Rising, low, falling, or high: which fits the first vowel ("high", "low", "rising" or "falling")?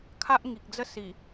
high